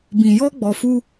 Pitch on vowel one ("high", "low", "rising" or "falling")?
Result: low